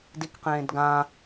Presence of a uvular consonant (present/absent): present